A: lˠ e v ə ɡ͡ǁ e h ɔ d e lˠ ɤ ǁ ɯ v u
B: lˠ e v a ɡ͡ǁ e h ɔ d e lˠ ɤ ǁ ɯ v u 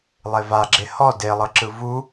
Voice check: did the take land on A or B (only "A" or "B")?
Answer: B